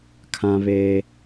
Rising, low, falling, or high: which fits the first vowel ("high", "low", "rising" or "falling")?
high